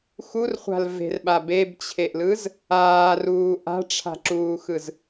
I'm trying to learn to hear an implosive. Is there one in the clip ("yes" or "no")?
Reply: yes